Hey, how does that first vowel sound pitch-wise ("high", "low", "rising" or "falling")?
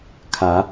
rising